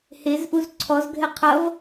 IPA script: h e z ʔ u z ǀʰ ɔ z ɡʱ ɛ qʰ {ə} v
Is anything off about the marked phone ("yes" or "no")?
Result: yes